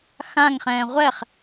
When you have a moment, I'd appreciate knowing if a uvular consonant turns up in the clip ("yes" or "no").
yes